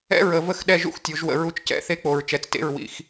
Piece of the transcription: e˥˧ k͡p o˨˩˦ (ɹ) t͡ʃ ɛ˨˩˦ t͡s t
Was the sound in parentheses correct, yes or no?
yes